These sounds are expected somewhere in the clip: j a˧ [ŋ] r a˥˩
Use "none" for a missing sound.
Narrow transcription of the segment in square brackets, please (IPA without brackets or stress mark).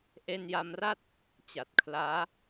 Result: m